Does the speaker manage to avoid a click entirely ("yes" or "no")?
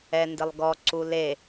no